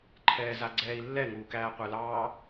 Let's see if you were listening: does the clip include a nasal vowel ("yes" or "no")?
no